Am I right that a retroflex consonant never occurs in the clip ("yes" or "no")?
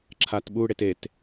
no